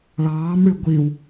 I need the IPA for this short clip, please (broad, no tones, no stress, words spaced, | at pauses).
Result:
ɭɑːmɽʉ ɡʷiw